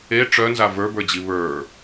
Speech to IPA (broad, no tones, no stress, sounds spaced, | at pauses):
e ʈ͡ʂ œ n z a v ə˞ b ə˞ d͡ʑ i β ə˞